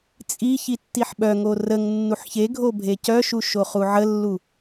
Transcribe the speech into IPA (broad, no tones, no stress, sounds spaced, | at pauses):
t͡sʼ i ç i tː i ħ ɓ œ ŋ o r ə ŋ nː u ħ ç e ɡʱ o bʱ e c œ ʃ u ʃ o χ u ʕ ə lː u